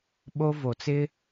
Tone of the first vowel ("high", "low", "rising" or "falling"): high